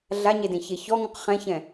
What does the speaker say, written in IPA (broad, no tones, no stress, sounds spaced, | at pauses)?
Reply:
ɮ a ɲ e d ẽ ç e ç ɔ ŋ ũ q χ ɛ̃ ç ɛ̃